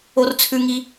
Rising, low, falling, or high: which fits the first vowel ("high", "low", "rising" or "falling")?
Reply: high